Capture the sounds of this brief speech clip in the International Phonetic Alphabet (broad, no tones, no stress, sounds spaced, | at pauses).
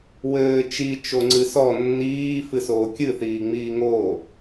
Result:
w ɘː t͡ʃ i t͡ʃ o ŋ͡ǀ ɨ s ɔ nː iː f ɨ s oː kʲ ɨ θ iː ŋ͡m iː ŋ oː